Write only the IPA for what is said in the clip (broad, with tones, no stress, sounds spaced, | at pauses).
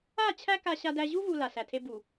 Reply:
a˦˨ t͡ɕʰ æ˦ k a˨ ɕ a˨ d æ˨ ʑ u˦ v u˨ l a˨ s æ˨ tʰ e˦ b u˨